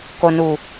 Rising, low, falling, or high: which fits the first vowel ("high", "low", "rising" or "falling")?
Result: low